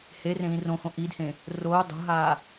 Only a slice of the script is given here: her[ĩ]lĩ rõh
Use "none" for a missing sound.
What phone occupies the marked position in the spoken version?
ẽ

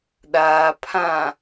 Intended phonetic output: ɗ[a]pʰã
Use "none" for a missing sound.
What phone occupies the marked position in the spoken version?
a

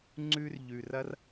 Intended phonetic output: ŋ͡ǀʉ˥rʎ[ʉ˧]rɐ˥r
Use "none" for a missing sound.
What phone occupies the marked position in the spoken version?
ʉ˧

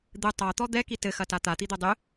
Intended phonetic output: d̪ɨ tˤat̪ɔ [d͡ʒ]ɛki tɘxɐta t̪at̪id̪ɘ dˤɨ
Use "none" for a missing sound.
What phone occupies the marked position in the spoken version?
d̪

